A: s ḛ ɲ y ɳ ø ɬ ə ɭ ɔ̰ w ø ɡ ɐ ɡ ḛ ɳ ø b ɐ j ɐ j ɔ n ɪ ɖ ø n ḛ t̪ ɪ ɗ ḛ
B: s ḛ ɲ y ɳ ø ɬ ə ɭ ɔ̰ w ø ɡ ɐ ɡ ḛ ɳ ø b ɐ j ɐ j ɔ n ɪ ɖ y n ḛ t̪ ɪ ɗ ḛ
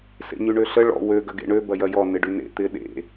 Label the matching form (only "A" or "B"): B